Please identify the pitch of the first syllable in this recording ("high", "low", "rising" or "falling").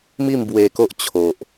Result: falling